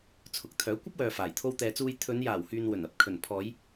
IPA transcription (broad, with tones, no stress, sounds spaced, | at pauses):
t͡sʰ ʊ˨˥ k̚ t̪ʰ œː˨˥ kʷ ɐ˥ p̚ w œː˨ f aː˨˩ j t̪ʰ o˧ w t̪ ɛː˨ t͡s uː˧ j t̪ʰ ɵ˨˧ n j aː˨˩ w h yː˨ n w ɵ˨˩ n ɐ˨˥ p̚ kʰ ɵ˨˩ n pʰ ɔː˨˧ j